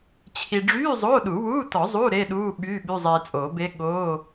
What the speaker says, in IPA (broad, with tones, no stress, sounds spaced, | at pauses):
t͡ɕʰ i˧ ɖ͡ʐ yː˧˥˧ zˤ oː˧˥˧ ɗ u˨˩˦ w uː˧˥˧ t ɔ˨˩˦ zˤ u˧˥˧ ɾ e˧˥˧ ɗ uː˧˥˧ ɓ yː˧˥˧ ɓ y˧˥˧ zˤ eː˧ t͡sʼ oː˨˩˦ b e˦˥ ɠ oː˧˥˧